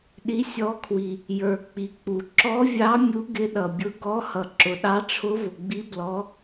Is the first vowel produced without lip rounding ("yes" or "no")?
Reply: yes